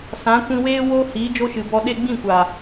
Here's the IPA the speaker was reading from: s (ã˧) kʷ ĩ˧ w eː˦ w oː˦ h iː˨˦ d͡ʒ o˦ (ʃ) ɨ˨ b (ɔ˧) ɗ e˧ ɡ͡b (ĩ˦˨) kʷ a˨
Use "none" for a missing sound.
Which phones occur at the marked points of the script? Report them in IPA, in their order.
ã˨˦, ʃ, ɔ˧, ĩ˦˨

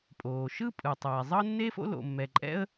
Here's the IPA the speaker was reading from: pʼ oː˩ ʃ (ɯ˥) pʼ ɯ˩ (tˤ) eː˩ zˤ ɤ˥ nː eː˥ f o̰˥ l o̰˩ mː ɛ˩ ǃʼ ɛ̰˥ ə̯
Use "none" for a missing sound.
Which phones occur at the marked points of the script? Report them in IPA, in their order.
ɯ˥, tˤ

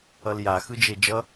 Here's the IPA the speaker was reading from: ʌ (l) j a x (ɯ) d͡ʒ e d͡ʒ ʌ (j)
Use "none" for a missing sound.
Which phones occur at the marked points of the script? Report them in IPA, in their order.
l, ɯ, none

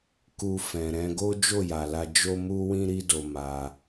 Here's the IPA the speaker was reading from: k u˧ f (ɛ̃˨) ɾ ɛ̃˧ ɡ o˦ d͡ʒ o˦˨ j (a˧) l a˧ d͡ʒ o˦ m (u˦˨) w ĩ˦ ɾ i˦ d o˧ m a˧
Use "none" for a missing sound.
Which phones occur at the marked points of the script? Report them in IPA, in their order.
ɛ̃˨, a˨, u˦

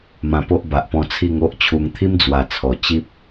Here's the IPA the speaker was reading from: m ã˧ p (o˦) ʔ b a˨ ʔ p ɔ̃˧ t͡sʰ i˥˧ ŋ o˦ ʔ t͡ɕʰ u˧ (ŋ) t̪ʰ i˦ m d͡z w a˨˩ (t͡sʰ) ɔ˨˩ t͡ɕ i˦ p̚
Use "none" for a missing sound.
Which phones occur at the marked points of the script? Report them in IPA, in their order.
o˦, ŋ, t͡sʰ

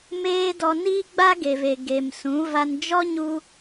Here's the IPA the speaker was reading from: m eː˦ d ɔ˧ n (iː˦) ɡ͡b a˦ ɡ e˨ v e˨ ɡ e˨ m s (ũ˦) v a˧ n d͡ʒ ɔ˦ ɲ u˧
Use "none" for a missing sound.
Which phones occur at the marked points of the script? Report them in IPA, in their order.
iː˦, ũ˨˦

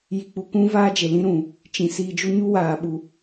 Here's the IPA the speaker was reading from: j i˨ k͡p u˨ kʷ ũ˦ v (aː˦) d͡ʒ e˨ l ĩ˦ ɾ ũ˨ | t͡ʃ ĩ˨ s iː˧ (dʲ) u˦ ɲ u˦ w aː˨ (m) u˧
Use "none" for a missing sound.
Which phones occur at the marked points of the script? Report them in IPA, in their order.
aː˦, d͡ʒ, ɓ

